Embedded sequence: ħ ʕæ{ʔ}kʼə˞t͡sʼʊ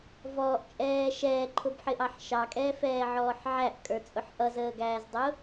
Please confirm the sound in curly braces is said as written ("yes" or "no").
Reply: yes